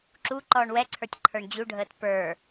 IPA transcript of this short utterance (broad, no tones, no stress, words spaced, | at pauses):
ǁu ǃɔːɳwɛǀʰə˞tʲ ǃʰə˞ɳd͡ʑuɖʱəːt pə˞